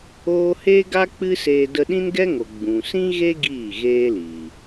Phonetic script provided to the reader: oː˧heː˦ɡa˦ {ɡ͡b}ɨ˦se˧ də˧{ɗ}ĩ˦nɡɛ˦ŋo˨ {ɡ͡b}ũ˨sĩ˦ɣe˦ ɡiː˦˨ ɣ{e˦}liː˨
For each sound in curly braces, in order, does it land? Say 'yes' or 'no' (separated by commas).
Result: no, yes, yes, no